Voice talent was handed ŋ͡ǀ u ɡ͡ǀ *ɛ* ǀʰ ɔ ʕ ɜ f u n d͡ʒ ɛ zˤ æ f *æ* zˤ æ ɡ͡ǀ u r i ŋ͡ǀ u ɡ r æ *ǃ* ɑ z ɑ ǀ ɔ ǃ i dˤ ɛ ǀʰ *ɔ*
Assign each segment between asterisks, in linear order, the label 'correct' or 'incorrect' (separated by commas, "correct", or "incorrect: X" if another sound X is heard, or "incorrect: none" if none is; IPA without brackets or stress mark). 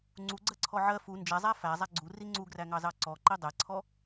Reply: incorrect: ɜ, correct, incorrect: ŋ, correct